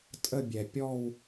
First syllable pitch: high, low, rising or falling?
falling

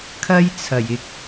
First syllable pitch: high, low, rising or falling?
high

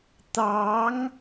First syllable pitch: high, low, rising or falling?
rising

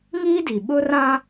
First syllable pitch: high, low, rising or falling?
high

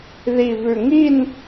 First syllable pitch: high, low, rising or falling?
low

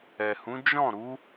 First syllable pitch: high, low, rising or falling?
low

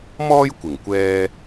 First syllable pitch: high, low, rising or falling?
high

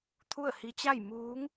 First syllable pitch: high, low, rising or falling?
falling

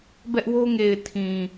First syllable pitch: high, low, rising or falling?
high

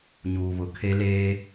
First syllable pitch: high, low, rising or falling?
low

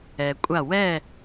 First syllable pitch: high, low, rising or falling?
low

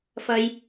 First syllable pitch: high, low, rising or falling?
high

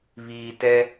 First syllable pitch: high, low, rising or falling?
low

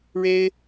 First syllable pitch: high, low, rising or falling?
high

